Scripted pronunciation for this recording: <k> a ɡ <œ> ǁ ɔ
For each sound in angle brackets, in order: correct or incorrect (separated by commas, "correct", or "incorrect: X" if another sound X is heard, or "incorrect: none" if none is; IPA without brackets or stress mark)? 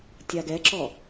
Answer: incorrect: tʲ, incorrect: ɛ